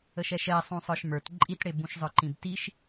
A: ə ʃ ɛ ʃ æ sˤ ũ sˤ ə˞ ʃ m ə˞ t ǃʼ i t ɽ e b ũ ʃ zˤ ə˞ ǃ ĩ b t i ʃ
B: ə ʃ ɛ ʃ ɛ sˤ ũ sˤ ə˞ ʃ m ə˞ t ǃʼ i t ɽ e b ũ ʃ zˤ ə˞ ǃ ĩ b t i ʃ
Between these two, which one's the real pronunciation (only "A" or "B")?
B